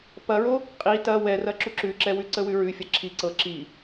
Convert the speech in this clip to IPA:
pɐɹo | qʼi tɐ wɛrɐ ǁuǁʉǁɛwʉ ǀəwʉɹʉfʲɐ ǁʰi ǀɤ ǁi

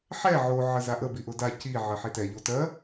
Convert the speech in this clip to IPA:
ħɛ ʕo ʕəzaʔə biʔʊda ci ʕɜħitɛ ʎotɜ

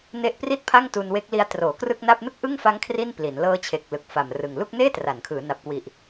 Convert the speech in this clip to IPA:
ne˦˥ʔpri˥˩t̚pʰa˥˩ŋ tu˧nwe˦˥k̚li˦˥a̯ troː˩˦krɯ˥˩k̚na˥˩p̚ nɯ˥˩k̚ʔɯ˥˩ŋfa˦˥ŋ kʰri˥˩npli˩˦n lɤː˦˥t͡ɕʰe˨˩k̚ lɯ˨˩k̚fa˨˩mrɯ˨˩ŋ lu˥˩k̚neː˥˩tra˩˦n kʰɯː˩˦na˨˩p̚kwi˨˩ʔ

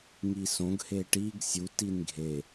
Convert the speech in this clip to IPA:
ŋisõɡ heʈiɡ sʲut inɡʱe

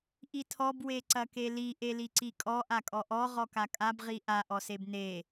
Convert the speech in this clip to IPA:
ʔitʰɔb weǀɐkeli ʔeliǀikʼɔ ʔakʼɔʔɔ ʁɔkakʼab ʁiʔa ʔɔsebne

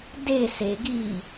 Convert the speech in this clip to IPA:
de se ɡi

